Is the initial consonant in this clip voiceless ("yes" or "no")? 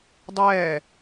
no